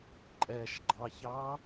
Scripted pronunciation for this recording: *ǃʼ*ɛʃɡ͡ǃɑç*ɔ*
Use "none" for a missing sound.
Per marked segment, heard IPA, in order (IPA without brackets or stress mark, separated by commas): ǃʼ, ɑ